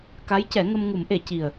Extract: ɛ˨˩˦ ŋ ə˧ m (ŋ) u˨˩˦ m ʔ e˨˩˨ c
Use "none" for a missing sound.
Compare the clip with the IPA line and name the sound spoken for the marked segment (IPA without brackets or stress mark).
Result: ŋ